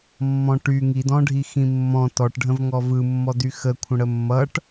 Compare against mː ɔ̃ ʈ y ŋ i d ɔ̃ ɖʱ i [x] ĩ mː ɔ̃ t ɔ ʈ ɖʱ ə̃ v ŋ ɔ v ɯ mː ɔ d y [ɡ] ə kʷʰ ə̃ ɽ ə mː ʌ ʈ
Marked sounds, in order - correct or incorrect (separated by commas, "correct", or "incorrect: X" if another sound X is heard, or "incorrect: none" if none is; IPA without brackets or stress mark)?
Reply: correct, incorrect: x